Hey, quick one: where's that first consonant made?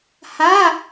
throat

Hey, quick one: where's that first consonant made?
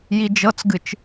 palate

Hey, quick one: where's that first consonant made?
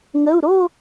velum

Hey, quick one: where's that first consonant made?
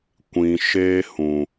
velum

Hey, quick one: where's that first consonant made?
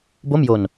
lips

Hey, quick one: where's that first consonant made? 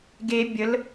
velum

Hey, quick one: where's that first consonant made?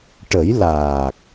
retroflex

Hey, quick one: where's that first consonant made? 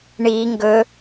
retroflex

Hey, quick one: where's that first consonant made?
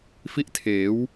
lips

